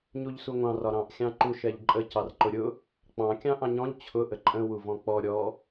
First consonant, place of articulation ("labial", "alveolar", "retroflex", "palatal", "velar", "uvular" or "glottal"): palatal